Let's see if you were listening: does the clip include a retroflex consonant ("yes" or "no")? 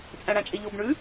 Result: yes